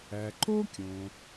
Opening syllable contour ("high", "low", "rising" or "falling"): low